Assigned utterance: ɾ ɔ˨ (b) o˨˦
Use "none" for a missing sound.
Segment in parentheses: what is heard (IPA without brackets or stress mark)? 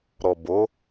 b